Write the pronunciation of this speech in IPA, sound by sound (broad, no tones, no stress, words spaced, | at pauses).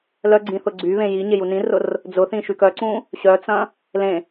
lœɡ͡ǀĩ θʊɡ͡ǀyβẽ jiɲe junĩrʊr | d͡zʊθĩ ʃykœǀũ | ɕœt͡sɐ̃ | lẽ